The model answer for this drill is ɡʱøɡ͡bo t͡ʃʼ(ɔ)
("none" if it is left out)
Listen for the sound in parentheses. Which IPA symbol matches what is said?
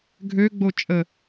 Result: ə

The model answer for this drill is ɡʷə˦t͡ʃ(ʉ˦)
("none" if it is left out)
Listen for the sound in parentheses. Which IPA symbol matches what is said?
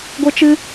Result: ɨ˦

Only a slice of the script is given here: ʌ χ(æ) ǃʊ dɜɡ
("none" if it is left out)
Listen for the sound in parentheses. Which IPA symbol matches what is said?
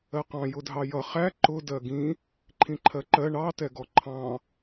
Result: æ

